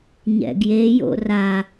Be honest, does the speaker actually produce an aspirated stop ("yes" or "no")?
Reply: no